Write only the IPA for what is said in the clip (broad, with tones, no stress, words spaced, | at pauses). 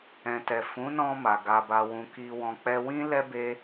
ɛ̃˨tɛ˨ fũ˨˦nɔ̃˧ ma˨ɡa˧ba˧ wũ˧ki˧wɔ̃˧ k͡pɛ˧wĩ˦ lɛ˦be˦